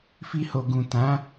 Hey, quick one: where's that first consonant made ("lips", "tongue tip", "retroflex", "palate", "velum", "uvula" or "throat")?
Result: lips